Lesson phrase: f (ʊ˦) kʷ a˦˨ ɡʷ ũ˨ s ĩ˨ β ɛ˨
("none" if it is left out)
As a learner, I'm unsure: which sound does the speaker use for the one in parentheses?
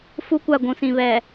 u˦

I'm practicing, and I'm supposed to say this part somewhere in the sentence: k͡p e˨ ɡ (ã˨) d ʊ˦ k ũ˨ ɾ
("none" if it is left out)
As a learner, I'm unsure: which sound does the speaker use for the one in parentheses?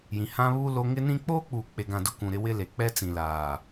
ã˨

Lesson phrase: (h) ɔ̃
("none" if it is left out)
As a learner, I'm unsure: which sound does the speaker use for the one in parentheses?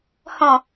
h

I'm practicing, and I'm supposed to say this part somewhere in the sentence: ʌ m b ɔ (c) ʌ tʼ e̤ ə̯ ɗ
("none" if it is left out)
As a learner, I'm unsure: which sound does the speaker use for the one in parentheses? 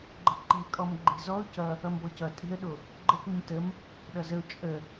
c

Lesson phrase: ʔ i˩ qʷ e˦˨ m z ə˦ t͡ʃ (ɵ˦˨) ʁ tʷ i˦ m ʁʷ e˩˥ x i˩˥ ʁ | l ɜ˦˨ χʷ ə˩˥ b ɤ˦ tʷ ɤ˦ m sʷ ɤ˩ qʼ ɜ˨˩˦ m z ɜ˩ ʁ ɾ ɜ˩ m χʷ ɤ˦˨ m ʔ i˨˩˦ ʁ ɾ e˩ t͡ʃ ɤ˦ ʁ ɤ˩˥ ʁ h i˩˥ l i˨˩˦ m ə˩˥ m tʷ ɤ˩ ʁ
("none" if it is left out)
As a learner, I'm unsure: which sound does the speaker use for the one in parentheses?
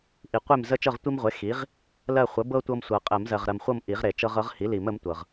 ɤ˦˨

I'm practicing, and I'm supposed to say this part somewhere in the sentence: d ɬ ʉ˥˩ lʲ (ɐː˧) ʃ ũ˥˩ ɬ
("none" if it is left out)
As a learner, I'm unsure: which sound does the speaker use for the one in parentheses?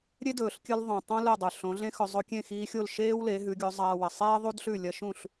ɐ˧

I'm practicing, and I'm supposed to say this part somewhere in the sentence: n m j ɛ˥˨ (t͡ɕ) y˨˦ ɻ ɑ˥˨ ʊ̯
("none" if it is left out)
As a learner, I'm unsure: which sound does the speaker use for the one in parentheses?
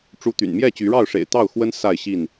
t͡ɕ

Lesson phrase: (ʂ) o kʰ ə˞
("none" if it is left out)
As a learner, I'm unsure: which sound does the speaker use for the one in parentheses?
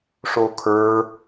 ʂ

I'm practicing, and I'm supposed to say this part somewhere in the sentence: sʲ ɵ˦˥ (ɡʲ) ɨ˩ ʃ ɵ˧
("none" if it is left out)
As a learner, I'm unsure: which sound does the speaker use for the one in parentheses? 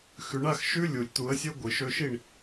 ɡʷ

